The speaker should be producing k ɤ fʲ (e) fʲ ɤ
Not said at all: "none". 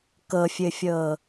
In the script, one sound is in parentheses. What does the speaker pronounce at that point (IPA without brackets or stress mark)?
ɘ